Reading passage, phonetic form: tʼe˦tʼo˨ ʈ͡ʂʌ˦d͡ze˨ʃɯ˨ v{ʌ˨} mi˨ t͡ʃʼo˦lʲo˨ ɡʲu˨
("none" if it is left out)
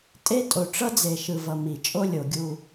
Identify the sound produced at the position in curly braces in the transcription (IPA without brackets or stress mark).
ʌ˨